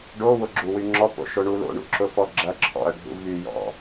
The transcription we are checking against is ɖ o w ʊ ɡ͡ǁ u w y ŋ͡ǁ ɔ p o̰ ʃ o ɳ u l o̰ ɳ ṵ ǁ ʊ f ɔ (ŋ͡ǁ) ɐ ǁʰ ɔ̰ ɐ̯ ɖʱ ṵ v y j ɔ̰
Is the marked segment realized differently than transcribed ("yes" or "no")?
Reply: yes